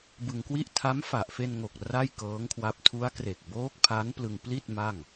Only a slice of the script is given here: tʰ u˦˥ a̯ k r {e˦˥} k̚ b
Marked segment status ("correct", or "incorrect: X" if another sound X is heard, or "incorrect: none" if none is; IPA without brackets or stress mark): incorrect: e˨˩